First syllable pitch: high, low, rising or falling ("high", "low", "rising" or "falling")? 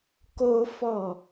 high